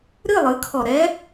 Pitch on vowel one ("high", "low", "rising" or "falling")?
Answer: falling